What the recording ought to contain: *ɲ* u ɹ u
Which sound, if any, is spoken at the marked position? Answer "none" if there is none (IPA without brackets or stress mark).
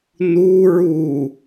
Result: n